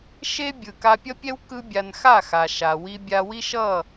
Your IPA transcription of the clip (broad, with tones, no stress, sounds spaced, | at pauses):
ʃ e˦ bʲ ɯ˨ k a˧ pʲ ʌ˦ pʲ ɛ˦ w k ɯ˦ bʲ a˧ n x a˦˨ x a˨ ʃ a˨ w i˧ bʲ a˧ w i˦ ʃ ʌ˦˨